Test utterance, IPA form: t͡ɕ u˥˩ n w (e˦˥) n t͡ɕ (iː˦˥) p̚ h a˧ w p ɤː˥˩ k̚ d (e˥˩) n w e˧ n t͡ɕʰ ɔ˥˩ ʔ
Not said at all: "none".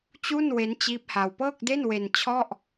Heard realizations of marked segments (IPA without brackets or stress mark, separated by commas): e˦˥, iː˦˥, e˥˩